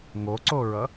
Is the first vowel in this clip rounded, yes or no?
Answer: yes